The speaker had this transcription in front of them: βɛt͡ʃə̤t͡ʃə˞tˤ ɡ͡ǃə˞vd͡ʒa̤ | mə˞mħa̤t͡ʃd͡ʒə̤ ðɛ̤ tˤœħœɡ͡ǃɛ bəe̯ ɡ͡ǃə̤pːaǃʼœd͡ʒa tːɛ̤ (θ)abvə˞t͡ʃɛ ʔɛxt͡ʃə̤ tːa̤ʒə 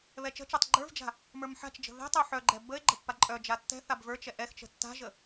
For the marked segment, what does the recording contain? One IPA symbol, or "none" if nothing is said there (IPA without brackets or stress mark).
θ